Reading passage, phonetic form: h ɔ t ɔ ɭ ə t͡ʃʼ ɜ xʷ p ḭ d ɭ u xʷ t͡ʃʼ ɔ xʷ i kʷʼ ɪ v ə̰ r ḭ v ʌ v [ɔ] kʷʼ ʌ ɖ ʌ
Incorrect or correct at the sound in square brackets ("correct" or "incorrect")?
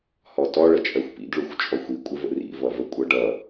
incorrect